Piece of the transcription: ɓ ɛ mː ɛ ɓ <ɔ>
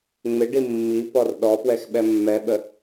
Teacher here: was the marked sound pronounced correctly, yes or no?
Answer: no